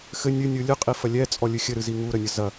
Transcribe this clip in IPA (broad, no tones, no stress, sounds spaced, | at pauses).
x ɘ nʲ ɨ nʲ ɯ lʲ ɨ qʼ i f ɐ lʲ ɛ t͡sʼ ɔ lʲ ɨ xʲ ɘ ɾ ɨ z i ŋ u ɾ ə nʲ ə z ɐ